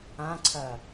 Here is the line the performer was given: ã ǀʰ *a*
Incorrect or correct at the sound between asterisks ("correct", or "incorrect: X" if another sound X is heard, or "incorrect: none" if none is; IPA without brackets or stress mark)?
incorrect: ɐ